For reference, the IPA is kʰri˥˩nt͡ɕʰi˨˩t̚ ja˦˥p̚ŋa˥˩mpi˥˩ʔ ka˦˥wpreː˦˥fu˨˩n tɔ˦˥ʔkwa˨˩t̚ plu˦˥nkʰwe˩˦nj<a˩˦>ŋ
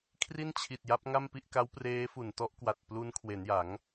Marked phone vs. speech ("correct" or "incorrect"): correct